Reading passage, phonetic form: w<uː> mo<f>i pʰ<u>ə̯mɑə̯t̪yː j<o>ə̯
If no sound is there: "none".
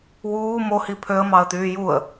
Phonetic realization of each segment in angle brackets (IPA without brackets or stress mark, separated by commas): uː, h, ø, u